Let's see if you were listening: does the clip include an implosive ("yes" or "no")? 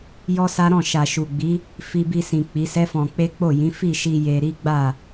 no